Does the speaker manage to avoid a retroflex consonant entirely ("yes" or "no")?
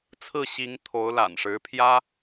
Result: no